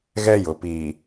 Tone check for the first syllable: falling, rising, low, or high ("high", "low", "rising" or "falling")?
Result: high